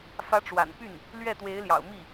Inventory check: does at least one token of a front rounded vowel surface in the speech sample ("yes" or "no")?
yes